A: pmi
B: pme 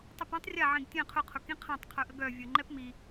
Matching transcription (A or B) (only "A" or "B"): A